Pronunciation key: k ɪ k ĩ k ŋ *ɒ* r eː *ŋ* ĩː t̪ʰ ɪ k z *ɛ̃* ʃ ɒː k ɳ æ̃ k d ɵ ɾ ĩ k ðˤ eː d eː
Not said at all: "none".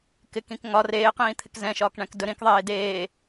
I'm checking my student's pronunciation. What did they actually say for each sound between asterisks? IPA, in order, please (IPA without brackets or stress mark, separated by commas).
ɒ, q, ɛ̃